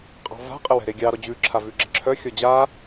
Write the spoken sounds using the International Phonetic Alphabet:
qʼ ɑ̤ v a̤ qʼ ə w ɛ̤ ɾ e ɡʲ ɑ ɾ ɔ d͡ʑ ʉ ǁʰ a v ʉ ɡ͡ǁ ə ǁʰ œ xʲ ɔ d͡ʑ a

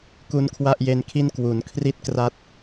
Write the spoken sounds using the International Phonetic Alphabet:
k u˦˥ n kʰ w a˥˩ ʔ j e˦˥ n kʰ i˥˩ n k w u˩˦ n kʰ r i˦˥ t̚ k r a˦˥ t̚

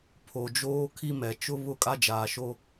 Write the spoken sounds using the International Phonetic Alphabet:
pʰ o˨ d͡ʒ oː˦ kʰ i˦ m ɛ˨ t͡ʃ ʊ˦ β ʊ˦˨ kʼ a˦ d͡ʒ aː˨ ʃ o˦

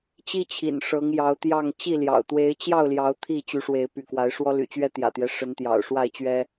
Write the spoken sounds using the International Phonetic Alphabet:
t͡ɕ i˦ t͡ɕʰ ḭ˨˩ n ʂ ɤ˨˦ ŋ j ɑ˨˦ ʊ̯ t̪ j ɑ˥˨ ŋ t͡ɕ i˥˨ l j ɑ̰˨˩ ʊ̯ t̪ w e˨˦ ɪ̯ t͡ɕ j ɑ˥˨ ʊ̯ l j ɑ˨˦ ʊ̯ t̪ʰ i˥˨ t͡ɕ y˨˦ ʂ w e˨˦ ɪ̯ p y̰˨˩ k w a˨˦ ɪ̯ ʂ w ɔ˦ l y̰˨˩ t͡ɕ ɥ ɛ˦ t̪ j ä̰˨˩ t̪ j ɛ˦ ʂ ə˨˦ n t̪ j ɑ̰˨˩ ʊ̯ ʂ w a˥˨ ɪ̯ t͡ɕ ɥ ɛ˦

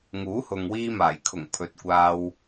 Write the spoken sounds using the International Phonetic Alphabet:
ŋ uː˨˥ h ʊ˨ ŋ w iː˧ m aː˨˩ j kʰ ʊ˨˩ ŋ pʰ ɵ˨˥ t̚ kʷ aː˧ w

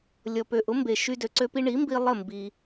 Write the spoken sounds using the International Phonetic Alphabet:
lʲ ɔ˩ p ø˩ ʔ ʊ˩˥ m b e˩ ʃ y˧ d ø˩ ǀ ø˧ p i˧ ɳ i˩˥ m b i˧ lˠ ə˥˩ m b i˩

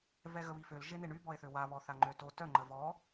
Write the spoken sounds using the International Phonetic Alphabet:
v ɛ ɣ ə β i f ø l ʒ e n e ɳ y b ɔ e̯ θ ø w a β ɔ θ a ŋ͡ǃ ø t o t œ ŋ͡ǃ ə v ɔ

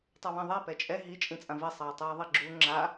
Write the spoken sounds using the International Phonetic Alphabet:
tˤ ʌ β ĩ ðˤ ɛ p ɛ t͡ʃʼ ɛ ɦ i t͡ʃʼ ĩ t͡sʼ ã v i sˤ ʌː tˤ eː ðˤ i ɡ͡ǁ u ŋ͡ǁ a

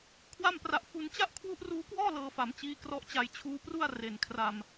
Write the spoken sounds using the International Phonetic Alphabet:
kʰ w a˥˩ m p r a˦˥ ʔ f u˧ n t͡ɕ a˥˩ ʔ kʰ w u˦˥ ʔ r uː˦˥ k w ɔː˥˩ l ɤː˧ f a˩˦ m t͡ɕ iː˦˥ k r ɔ˦˥ ʔ t͡ɕ a˧ j t͡ɕʰ uː˦˥ p r u˥˩ a̯ r e˨˩ n kʰ r a˧ m

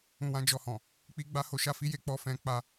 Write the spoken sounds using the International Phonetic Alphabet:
ũ˧ w ã˦ d͡ʒ ɔ˧ h ɔ̃˨ | k͡p i˦ ɡ͡b a˦ h o˦ ʃ a˦ f i˦ j e˧ k͡p ɔ˧ f ɛ̃˧ k͡p a˧

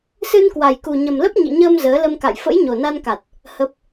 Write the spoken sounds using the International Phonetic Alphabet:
s ɨ˧ n k w a˨˩ j k u˨˩ ɲ ə˨˩ m l ə˦˥ p̚ ɲ ḭ˧˨ ɲ əː˧ m z əː˨˦ l ə˧ m k a̰˧˨ j f ə̰˧˥ j ɲ o˨˩ n a˧ n k a˨˩ t̚ | h ə˦˥ p̚

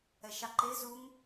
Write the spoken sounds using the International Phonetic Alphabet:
ɛ ʃ ɑ ǃ e z u ŋ

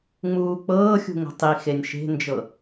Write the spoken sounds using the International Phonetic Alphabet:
ŋ͡m uː k͡p ɤː xʲ ṳ ŋ ə̤ tˤ i x e nʲ ʃ e̤ n d͡ʒ ɤ

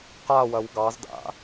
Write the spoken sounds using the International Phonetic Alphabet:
q a w ɐ w ɡ ɑ z d a̰

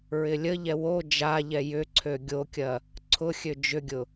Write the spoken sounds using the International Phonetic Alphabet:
ɹ ɪ lʲ ə ʎ ɛ w o d͡ʒ a ʎ ɛ j ʏ ǀʰ ø ɡʲ o kʲ ɐ | ǀʰ ʊ xʲ ø d͡ʒ ʏ ɡʲ ʊ

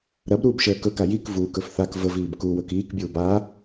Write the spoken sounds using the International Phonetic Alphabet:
ɾ ɐ b ɾ uː b ʃ əː k ɵ k a j i k v uː k ɵ f θ a k v ə v iː b k u w ɵ k iː k bʲ uː b a

